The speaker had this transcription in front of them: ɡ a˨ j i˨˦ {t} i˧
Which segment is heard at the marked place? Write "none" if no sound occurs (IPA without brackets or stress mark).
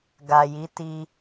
t